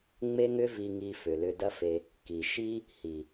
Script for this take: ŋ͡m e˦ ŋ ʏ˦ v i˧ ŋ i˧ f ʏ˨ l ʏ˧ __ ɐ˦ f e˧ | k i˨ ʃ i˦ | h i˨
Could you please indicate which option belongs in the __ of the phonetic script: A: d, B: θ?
A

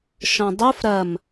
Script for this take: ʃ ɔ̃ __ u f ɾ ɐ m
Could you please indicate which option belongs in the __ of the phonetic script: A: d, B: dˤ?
B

